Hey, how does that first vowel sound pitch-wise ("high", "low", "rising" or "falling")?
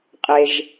low